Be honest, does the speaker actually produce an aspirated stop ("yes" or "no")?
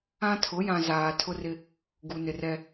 yes